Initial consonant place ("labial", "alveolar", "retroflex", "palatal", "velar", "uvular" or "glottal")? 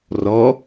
alveolar